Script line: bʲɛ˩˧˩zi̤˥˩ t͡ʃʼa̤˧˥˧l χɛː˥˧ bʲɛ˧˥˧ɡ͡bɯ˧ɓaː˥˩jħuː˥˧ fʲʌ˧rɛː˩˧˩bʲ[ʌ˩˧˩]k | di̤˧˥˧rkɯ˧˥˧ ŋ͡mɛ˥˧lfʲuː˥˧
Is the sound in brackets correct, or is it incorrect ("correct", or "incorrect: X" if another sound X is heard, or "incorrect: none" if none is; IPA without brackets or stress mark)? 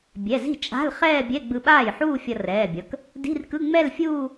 correct